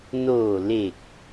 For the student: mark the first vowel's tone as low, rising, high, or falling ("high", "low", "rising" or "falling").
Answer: low